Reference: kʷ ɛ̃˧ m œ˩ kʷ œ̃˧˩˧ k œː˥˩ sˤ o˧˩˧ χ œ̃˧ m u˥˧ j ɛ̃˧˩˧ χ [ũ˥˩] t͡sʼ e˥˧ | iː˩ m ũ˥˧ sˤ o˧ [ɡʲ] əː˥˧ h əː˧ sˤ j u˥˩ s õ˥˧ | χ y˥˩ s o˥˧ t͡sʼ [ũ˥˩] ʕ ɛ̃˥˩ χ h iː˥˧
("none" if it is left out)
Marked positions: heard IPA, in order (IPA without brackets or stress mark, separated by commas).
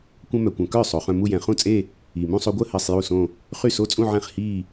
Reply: ũ˥˩, ɡʷ, ũ˥˧